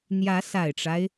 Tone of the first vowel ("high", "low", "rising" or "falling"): rising